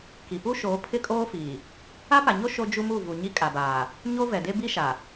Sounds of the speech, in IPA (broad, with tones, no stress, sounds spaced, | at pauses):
k i˨ p u˦ ʃ oː˨˦ pʰ ɪ˦ kʼ oː˦ f iː˨ | a˦ p a˨ ɲ o˦ ʃ o˦ d͡ʒ u˦ m u˦˨ v u˨ ɲ i˦ kʼ a˨ b aː˨ | ɲ o˦ v ɛ˨ d e˦ b i˦ ʃ a˨